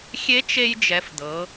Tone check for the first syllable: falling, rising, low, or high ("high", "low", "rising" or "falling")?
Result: rising